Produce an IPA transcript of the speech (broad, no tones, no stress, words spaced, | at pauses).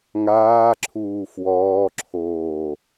ŋaːǁʰuː fwɔːǁʰoː